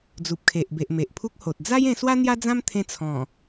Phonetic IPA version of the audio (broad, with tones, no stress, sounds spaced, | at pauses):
d͡z u˨ p̚ kʰ e˨ ʔ b e˨ ʔ m e˨ ʔ pʰ u˦ k̚ h o˨ t̚ d͡z a˦ j ẽ˧ s w a˦ n̪ j a˦ d͡z ã˦ m t̪ʰ ẽ˧ t͡sʰ ɔ̃˨˩